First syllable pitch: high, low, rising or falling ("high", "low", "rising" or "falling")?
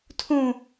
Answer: high